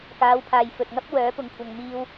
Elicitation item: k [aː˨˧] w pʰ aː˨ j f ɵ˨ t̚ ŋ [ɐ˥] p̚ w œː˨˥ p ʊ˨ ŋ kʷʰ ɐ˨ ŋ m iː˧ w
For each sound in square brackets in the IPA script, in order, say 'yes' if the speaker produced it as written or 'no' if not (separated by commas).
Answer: yes, yes